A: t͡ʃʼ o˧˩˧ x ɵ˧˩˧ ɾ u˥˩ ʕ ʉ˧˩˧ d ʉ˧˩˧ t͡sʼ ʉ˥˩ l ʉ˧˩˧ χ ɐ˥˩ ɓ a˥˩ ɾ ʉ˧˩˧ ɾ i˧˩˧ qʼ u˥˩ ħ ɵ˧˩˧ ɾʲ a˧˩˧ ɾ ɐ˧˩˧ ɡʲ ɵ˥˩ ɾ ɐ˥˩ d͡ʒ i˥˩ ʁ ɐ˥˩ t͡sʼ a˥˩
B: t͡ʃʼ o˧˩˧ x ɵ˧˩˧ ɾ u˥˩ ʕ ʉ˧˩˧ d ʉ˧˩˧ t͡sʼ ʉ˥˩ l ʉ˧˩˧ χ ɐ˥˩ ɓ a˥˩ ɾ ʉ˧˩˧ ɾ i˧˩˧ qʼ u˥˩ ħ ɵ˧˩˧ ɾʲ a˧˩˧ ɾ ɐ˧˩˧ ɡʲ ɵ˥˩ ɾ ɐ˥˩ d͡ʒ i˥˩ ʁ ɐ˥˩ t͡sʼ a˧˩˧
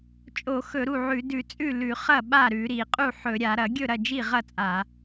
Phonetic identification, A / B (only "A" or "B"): B